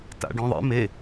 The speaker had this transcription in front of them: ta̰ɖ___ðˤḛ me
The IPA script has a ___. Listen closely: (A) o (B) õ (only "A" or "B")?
B